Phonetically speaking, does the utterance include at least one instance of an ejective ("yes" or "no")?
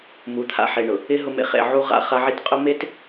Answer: yes